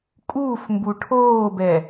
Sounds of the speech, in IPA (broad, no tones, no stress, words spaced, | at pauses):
kʼuːfmbu ʈʰoːbɛ